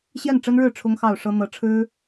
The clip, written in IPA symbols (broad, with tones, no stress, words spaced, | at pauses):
ɕjɛ˥˩nʈ͡ʂə˥nɻɻ̩˥˩ ʈ͡ʂʰʊ˥ŋxɑ˥˩ʊ̯ʂɤ˥ n̪ɤ˧˥ʈ͡ʂʰɻ̩˥